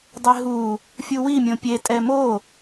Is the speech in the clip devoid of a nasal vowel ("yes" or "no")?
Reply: no